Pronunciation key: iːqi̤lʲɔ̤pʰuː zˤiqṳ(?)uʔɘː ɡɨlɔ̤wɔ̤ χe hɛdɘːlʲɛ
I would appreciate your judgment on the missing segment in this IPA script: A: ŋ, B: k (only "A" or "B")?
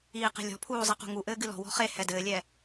A